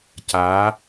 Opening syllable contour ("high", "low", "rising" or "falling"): rising